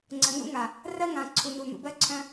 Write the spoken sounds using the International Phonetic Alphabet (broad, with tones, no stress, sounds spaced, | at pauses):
ŋ͡ǀ ə˨ n̪ ṵ˦ ŋ a˨ | r ɜ˦ ŋ ã˨ ǀʰ u˨ n u˨ n̪ ṵ˨ b ɜ˦ ǀʰ œ̃˦